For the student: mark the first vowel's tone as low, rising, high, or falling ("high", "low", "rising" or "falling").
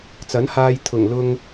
rising